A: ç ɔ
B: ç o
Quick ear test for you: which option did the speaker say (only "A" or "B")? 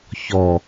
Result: A